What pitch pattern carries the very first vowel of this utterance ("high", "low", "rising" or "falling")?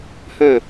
falling